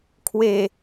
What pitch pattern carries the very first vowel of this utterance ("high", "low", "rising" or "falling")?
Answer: low